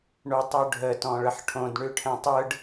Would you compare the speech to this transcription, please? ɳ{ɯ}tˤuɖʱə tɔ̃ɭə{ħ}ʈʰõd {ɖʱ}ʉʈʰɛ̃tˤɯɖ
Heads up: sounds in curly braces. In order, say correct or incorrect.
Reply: incorrect: u, correct, incorrect: ɳ

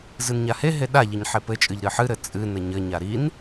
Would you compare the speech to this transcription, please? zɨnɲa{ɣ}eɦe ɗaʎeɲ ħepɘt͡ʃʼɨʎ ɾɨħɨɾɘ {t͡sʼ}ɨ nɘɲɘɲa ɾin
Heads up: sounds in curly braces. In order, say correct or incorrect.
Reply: incorrect: h, correct

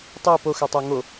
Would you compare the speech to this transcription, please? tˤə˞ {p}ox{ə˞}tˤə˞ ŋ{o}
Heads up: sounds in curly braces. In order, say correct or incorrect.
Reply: correct, correct, correct

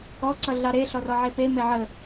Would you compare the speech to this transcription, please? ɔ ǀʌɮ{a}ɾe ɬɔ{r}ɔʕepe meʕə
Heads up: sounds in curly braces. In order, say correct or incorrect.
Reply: incorrect: ɑ, correct

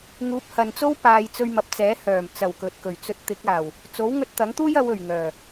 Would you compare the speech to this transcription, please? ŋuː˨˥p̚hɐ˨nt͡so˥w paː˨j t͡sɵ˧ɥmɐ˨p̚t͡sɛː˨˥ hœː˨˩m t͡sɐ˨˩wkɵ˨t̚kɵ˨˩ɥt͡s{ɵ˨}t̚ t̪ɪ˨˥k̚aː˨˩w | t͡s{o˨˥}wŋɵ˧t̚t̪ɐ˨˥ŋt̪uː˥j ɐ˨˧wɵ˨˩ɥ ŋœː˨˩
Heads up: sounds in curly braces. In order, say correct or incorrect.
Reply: incorrect: ɵ˧, correct

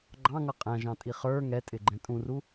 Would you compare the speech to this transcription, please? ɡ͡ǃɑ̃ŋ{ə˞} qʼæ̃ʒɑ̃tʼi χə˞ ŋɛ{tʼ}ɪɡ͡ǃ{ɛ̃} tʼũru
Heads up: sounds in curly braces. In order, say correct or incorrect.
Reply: incorrect: ʌ, correct, correct

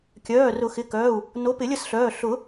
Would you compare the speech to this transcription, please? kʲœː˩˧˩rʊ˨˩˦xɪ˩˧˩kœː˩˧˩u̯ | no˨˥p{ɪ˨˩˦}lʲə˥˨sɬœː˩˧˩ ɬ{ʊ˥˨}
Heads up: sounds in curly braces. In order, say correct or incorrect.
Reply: correct, incorrect: ʊ˨˩˦

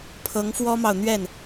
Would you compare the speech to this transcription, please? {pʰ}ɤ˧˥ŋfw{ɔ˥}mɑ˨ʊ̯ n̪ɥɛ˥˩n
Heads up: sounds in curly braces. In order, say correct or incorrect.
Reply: correct, correct

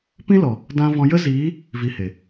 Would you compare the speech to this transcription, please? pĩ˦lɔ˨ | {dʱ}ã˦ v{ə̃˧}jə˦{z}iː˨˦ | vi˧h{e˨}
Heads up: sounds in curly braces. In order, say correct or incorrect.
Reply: incorrect: d, incorrect: ɔ̃˧, correct, correct

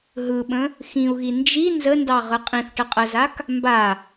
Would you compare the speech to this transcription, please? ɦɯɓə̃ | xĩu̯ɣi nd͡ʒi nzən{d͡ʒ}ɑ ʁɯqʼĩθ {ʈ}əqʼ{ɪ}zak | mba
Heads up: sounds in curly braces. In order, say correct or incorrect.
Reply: incorrect: d, correct, incorrect: ə

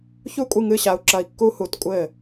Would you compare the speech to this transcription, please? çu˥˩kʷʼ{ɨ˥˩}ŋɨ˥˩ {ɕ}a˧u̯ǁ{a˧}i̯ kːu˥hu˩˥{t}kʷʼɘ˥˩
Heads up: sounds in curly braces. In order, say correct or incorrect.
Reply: correct, correct, incorrect: ɐ˧, correct

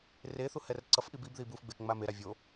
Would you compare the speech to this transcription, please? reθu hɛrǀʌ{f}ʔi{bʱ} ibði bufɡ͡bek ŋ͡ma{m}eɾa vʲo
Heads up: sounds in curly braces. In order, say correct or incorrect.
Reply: correct, incorrect: b, correct

